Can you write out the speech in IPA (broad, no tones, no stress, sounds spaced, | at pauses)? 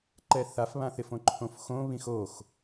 ǃ ɛ θ a f β ã θ ɪ f õ ǃʰ õ f x õ β ĩ x o x